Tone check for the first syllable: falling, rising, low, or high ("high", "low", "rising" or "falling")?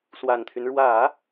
low